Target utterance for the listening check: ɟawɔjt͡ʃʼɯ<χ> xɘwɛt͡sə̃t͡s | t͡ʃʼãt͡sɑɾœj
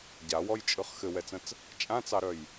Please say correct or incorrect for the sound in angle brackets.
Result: correct